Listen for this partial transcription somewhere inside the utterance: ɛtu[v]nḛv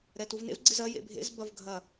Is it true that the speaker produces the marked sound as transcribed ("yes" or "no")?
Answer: yes